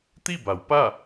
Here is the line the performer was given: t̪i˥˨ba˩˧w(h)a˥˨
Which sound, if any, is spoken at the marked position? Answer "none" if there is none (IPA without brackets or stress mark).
p